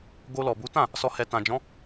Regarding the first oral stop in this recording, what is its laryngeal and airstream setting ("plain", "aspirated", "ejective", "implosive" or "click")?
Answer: plain